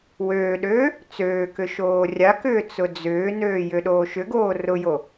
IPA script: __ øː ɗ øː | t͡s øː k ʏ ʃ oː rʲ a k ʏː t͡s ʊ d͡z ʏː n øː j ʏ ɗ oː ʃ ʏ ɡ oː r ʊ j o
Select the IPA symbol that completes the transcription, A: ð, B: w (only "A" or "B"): B